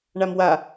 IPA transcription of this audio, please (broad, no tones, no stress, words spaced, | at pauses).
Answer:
ɳamwa